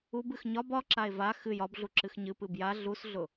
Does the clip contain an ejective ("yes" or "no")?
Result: no